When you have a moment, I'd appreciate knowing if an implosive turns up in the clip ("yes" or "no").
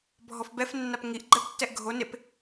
no